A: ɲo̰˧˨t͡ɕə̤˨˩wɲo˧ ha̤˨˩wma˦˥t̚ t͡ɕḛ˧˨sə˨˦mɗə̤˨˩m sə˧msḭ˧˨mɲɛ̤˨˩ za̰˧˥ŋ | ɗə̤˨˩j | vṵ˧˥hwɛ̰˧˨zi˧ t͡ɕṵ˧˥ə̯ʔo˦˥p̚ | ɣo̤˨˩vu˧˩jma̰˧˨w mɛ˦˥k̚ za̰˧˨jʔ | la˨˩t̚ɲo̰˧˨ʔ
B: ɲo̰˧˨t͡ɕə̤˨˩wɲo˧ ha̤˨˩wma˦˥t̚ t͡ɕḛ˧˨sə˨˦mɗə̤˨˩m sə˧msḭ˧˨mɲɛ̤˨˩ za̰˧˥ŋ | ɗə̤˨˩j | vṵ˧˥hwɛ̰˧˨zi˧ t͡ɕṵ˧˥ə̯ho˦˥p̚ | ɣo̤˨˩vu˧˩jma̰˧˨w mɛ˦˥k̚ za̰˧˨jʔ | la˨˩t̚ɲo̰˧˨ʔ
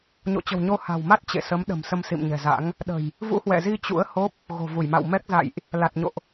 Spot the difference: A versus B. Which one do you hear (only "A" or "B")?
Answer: B